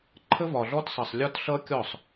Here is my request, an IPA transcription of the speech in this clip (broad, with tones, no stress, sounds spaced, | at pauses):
ǃʰ ə˦ v ɒ˨ ɮ ɔ˦ t sˤ ʌ˨ sˤ lʲ ɒ˦ t ɬ ʌ˦ kʲ ɔ˦˨ sˤ